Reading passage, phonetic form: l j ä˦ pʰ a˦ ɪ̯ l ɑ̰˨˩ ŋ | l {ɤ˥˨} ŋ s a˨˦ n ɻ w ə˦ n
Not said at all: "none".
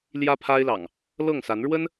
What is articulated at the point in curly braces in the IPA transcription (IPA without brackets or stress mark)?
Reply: ɤ˥˨